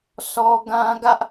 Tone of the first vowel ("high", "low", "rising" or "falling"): high